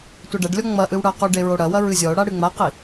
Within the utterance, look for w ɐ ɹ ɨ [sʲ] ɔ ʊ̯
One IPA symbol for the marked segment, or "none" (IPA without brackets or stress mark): zʲ